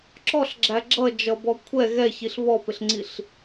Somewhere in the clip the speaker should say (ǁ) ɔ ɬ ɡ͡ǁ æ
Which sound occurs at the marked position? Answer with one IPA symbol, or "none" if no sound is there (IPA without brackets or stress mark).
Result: ǁ